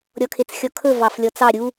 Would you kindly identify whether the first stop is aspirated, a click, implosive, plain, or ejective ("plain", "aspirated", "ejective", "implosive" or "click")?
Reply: aspirated